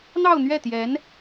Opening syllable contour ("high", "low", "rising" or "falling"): falling